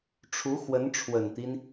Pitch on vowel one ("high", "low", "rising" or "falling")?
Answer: rising